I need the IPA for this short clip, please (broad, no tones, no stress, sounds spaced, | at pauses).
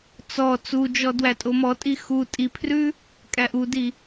t͡s ɔ t͡s u d͡ʒ ɔ d w æ tʼ o m ɔ tʼ i x u tʼ i pʰ r ʉ | kʼ æ ʔ u d i